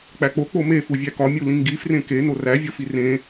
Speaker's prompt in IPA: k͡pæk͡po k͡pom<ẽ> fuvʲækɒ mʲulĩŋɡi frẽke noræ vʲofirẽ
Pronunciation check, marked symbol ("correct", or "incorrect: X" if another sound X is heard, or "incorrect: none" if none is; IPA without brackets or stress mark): incorrect: e